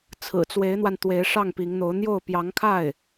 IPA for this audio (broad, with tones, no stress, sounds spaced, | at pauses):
t͡sʰ ɹ̩˨˩ t͡s w e˧˥ ɪ̯ n̪ w a˧ n t̪ w e˧˥ ɪ̯ ʂ ɑ˥˩ ŋ p i˧˥ ŋ n̪ o˧˥ ʊ̯ n̪ j o˥˩ ʊ̯ p j ɑ˧˥ ŋ kʰ a˥˩ ɪ̯